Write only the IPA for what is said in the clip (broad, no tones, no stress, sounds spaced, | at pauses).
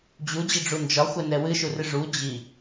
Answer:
d͡ʑ u d͡ʑ i ɖ͡ʐ u n d͡ʒ ɒ xʷ ɛ n ɛ w ɨ ʃ u r ɨ ʐ u d͡ʑ i